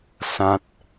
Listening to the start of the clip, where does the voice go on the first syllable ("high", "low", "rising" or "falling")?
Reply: low